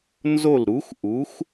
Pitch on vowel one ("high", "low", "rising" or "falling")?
falling